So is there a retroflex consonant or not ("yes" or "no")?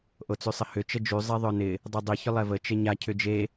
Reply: no